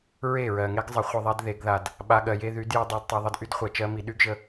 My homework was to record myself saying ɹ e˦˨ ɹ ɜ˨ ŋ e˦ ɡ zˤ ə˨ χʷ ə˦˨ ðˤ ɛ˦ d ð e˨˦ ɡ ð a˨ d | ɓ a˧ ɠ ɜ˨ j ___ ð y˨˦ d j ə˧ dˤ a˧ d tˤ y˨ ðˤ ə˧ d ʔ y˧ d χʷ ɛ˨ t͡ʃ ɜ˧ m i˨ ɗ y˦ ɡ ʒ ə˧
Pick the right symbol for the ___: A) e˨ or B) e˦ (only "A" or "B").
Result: B